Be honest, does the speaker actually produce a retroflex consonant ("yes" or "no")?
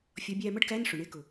yes